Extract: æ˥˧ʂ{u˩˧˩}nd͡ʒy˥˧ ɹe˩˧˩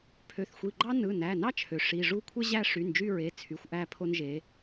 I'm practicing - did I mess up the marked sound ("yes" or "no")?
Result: yes